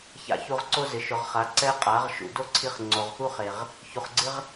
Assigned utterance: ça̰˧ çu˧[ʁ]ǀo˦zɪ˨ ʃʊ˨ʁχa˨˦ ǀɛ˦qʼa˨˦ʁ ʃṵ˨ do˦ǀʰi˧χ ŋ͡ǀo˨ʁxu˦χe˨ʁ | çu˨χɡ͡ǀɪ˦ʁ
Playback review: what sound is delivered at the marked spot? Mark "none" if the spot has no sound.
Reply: ʁ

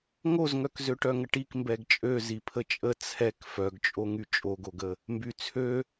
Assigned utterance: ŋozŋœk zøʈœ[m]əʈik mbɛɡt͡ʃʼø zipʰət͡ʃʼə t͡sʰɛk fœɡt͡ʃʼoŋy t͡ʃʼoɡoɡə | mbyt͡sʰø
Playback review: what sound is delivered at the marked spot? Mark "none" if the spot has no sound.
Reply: ŋ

